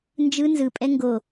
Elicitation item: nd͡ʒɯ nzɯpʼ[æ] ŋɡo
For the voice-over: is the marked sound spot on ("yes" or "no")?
no